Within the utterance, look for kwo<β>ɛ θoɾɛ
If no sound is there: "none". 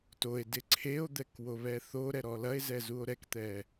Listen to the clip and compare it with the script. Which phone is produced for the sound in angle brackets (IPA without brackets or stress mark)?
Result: β